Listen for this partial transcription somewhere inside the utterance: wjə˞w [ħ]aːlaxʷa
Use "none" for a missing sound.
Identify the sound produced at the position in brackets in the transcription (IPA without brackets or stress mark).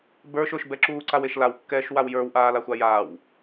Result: ʔ